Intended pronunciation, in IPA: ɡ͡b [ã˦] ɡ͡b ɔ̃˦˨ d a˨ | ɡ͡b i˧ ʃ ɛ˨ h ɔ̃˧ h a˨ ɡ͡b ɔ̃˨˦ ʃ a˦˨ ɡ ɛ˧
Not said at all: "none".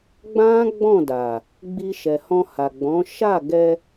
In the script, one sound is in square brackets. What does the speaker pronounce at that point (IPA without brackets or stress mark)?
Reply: ã˦